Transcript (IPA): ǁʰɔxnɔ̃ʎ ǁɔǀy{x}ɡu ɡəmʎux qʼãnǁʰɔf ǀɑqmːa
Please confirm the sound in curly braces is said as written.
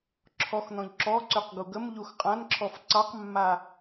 no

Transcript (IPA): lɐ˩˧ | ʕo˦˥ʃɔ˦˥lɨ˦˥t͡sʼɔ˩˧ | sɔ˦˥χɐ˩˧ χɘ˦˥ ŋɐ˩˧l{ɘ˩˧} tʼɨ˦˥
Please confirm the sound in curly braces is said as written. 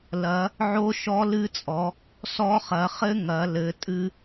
yes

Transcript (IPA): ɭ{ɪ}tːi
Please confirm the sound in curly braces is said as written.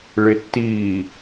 yes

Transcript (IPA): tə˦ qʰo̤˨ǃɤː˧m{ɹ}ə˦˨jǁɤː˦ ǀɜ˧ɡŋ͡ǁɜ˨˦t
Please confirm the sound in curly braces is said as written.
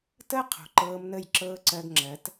no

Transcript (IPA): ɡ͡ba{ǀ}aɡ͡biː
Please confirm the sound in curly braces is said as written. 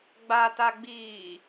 no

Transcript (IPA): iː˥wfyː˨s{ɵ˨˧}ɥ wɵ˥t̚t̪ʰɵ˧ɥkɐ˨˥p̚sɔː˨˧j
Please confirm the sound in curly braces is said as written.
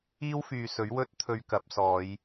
no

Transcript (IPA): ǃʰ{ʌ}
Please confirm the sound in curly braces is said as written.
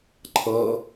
yes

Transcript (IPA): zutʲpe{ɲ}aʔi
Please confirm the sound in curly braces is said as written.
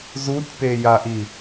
no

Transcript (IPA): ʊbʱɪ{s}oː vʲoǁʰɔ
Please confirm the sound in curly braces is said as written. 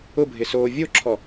yes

